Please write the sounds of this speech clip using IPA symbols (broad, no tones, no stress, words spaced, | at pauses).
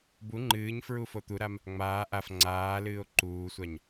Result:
bu ŋ͡ǃɨːɲfɹu fot̪uɾam | ŋ͡maː ʔaf ŋ͡ǀaːlɨːo̯ ǃuːsʷaɲ